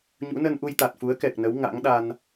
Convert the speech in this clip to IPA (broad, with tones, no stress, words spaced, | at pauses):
ɲṵ˧˥nə˧n ʔu˧jt̪a˨˩t̚fu˨˦ə̯ kɛ˨˩k̚nə˨˦w ŋa̰˧˥ŋɗa˧n